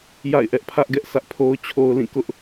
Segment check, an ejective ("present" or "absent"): absent